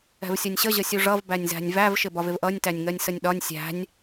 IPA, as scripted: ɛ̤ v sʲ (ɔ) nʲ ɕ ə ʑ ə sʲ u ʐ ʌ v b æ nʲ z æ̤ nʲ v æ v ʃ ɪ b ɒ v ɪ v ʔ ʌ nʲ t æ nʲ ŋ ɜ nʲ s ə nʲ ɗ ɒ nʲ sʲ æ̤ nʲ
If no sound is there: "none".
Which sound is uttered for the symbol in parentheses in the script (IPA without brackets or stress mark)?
ʌ